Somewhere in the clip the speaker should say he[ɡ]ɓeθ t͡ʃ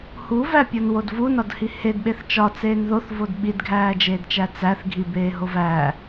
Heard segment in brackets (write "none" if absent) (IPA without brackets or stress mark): d